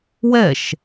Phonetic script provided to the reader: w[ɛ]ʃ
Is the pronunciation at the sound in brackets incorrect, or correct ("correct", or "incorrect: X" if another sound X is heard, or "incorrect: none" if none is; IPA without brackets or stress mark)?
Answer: correct